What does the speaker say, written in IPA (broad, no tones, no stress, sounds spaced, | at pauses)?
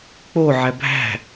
k͡p o ʕ æ bʱ æ̤